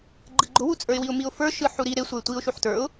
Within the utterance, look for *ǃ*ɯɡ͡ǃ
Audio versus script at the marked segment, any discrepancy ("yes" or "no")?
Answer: yes